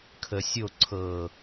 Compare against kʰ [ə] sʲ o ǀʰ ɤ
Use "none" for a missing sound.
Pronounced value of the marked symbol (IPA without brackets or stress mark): ə